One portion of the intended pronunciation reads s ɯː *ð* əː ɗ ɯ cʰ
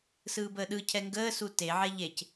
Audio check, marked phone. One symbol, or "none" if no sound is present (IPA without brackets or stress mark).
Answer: b